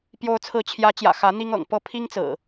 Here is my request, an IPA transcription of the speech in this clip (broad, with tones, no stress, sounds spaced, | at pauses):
p j o˨˦ ʊ̯ t͡sʰ ɹ̩˨˦ t͡ɕʰ j ä˨˦ t͡ɕ j ä̰˨˩ x ä˨˦ n̪ i˦ ŋ ɤ̰˨˩ ŋ p ɤ˥˨ pʰ i˦ ŋ t͡s ɹ̩˨˩